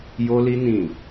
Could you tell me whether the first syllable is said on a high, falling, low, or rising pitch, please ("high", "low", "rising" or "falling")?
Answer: high